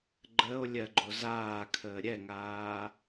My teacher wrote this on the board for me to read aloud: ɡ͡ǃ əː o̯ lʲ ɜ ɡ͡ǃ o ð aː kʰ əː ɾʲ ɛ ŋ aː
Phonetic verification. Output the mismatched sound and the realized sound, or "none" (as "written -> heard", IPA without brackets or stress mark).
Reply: ð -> z